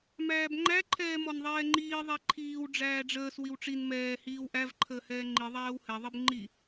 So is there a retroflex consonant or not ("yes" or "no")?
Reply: yes